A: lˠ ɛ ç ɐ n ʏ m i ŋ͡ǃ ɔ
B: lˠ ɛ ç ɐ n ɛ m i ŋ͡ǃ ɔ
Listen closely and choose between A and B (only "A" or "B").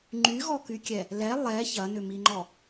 A